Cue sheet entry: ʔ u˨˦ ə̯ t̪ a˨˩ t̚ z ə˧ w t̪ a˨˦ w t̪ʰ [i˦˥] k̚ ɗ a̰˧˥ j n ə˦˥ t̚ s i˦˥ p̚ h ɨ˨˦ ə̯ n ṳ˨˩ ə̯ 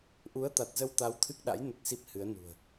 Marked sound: incorrect: ɨ˦˥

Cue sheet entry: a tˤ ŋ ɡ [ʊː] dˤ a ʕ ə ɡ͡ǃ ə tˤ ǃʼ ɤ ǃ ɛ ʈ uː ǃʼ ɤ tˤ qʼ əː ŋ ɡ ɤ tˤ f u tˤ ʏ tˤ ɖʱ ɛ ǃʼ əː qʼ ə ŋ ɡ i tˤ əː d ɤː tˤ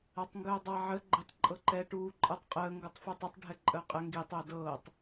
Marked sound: incorrect: əː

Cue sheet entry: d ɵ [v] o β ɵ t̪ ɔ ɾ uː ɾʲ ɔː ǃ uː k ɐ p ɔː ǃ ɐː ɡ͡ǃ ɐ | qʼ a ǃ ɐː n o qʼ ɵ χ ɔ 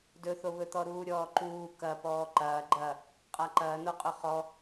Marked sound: incorrect: θ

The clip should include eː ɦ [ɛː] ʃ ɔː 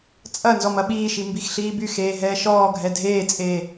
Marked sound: correct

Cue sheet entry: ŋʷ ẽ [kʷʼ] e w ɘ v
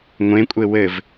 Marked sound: correct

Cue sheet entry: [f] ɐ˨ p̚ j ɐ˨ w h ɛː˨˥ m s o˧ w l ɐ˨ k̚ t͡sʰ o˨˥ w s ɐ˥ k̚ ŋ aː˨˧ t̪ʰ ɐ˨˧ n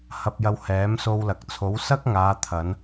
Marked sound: incorrect: h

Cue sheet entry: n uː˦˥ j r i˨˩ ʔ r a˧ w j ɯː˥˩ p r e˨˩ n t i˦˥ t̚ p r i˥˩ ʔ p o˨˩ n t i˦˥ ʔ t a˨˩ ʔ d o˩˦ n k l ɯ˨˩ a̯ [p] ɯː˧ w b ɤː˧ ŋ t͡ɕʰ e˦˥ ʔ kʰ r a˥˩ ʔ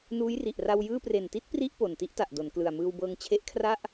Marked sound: incorrect: m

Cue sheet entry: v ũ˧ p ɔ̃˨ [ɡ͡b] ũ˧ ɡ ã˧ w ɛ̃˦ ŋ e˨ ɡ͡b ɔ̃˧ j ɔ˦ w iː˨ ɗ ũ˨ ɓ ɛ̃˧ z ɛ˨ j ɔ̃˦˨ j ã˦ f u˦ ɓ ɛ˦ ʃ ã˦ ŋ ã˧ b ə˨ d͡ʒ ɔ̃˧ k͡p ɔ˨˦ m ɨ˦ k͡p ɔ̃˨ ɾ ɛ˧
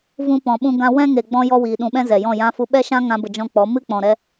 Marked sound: incorrect: ɓ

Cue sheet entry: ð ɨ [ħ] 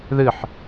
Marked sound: correct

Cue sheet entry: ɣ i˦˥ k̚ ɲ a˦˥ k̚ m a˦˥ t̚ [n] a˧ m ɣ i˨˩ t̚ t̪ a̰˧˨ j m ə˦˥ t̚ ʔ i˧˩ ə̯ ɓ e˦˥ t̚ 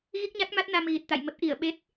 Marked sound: correct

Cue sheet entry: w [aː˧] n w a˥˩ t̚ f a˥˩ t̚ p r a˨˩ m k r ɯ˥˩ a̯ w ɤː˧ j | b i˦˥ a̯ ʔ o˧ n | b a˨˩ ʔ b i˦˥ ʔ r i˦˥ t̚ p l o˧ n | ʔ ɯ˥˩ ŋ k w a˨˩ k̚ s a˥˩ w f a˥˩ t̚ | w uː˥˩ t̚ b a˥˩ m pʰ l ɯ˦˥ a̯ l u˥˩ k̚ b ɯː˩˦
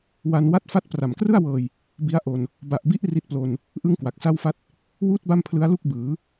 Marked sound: incorrect: a˧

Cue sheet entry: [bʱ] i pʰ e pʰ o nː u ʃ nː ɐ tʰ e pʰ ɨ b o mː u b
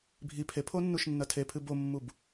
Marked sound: correct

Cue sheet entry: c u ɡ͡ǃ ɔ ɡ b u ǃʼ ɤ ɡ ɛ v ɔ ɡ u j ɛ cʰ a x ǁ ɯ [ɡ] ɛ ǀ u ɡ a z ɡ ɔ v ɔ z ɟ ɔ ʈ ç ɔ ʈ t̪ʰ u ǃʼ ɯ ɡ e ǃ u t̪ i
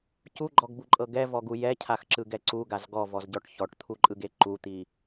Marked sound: correct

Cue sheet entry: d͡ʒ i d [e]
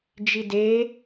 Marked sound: correct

